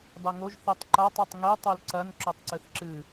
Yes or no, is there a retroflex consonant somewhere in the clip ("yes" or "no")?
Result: no